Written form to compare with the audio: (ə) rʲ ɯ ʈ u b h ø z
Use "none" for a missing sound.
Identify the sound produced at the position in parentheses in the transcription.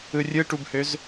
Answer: ɯ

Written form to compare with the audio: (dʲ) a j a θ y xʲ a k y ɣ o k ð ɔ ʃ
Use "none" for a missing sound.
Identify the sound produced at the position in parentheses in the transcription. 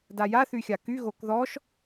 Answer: d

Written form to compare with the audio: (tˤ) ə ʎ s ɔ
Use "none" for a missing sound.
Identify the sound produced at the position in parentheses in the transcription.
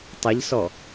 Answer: tˤ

